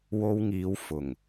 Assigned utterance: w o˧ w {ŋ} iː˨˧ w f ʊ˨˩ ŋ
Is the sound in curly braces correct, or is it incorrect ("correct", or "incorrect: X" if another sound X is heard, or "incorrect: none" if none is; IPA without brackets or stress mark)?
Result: correct